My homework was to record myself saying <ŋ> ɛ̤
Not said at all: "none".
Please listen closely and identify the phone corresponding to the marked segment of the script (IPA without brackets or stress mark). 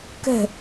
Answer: k